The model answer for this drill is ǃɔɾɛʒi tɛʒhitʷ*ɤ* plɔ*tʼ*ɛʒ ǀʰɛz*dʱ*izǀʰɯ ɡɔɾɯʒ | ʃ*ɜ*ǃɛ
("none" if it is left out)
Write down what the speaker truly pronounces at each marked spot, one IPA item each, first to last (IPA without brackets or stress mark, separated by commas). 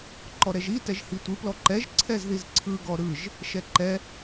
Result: ɯ, ǃ, ð, ɛ